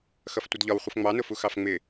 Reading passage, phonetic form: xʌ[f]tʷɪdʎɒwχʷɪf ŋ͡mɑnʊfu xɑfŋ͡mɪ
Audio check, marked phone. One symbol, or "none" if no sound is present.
f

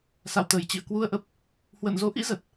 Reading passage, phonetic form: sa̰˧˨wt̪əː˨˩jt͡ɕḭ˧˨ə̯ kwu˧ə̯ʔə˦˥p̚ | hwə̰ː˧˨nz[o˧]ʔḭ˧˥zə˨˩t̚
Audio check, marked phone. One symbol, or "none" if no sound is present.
o˨˦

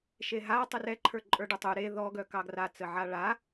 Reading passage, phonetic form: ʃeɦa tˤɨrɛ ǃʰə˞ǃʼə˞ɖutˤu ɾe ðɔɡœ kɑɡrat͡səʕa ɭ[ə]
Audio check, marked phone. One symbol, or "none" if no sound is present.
a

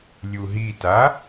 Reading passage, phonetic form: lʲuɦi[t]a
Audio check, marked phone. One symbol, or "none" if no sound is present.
t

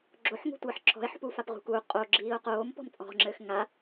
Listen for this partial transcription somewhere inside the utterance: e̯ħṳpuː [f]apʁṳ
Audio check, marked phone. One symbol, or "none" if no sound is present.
f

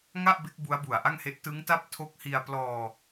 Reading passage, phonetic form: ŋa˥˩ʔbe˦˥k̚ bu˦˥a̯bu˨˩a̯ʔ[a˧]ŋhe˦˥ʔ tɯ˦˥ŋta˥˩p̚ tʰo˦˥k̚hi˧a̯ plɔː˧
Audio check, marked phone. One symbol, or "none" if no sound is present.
a˥˩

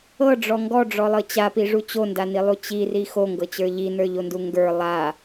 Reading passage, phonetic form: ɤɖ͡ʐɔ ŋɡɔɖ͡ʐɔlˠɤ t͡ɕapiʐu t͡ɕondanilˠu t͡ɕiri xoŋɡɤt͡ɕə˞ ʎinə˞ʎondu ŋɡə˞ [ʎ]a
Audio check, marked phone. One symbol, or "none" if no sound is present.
lˠ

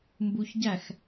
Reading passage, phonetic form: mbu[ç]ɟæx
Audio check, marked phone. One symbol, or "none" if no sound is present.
ç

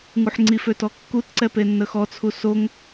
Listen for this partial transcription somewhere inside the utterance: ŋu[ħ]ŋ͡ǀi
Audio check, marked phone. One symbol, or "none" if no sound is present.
ħ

